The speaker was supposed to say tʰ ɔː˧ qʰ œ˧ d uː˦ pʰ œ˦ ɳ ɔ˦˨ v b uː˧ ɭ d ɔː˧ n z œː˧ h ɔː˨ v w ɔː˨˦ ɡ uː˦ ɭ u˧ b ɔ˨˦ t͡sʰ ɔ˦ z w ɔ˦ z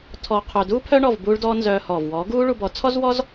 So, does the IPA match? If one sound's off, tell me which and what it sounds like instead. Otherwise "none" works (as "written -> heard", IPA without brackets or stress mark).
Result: none